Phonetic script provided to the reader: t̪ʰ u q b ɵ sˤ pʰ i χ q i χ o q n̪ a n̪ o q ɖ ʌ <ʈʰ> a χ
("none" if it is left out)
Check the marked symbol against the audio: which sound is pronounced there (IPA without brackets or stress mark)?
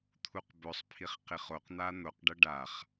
ɖ